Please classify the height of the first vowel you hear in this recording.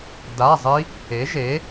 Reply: low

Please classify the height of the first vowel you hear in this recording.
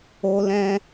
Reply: mid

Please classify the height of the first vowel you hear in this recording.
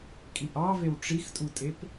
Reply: high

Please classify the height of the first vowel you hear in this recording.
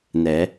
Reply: mid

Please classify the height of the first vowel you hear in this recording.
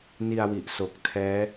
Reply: high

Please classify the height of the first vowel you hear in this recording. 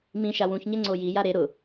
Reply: high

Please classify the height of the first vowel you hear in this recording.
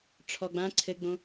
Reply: mid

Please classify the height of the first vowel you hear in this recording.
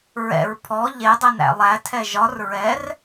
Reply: mid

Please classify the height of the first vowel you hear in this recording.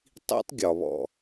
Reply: high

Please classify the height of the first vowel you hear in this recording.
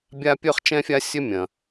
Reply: low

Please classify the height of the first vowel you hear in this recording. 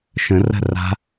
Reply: mid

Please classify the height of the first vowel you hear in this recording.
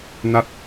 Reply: low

